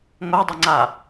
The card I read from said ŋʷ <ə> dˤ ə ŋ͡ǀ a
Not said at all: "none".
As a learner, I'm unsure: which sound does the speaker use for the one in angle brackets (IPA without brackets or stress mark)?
a